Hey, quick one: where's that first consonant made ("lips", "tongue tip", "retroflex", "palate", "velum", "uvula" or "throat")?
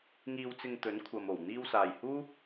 velum